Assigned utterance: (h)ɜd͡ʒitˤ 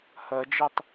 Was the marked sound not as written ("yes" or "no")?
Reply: no